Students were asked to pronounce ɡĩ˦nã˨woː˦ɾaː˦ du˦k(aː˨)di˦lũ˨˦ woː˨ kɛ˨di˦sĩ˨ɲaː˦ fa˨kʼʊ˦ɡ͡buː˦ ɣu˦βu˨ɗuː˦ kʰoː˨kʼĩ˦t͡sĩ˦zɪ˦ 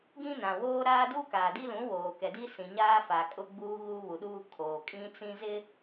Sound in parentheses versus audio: correct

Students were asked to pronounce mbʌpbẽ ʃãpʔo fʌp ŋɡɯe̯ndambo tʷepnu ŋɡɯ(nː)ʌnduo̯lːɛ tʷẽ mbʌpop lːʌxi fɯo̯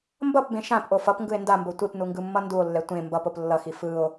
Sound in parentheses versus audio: incorrect: mː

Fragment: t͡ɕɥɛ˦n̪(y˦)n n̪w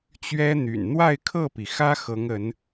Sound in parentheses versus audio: incorrect: y̰˨˩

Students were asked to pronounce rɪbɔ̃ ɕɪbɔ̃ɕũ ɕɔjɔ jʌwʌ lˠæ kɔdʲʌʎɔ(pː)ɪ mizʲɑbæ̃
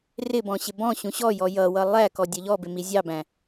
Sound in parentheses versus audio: incorrect: b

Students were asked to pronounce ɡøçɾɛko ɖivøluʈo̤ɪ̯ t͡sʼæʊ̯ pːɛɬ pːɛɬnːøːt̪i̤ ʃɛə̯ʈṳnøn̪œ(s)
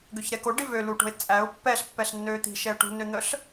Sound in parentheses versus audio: incorrect: ɬ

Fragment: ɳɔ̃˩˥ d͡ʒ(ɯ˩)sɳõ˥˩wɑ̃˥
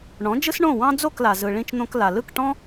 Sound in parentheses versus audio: incorrect: ɯ˥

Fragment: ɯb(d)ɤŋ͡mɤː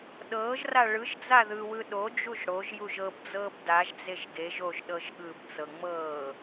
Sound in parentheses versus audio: incorrect: t͡s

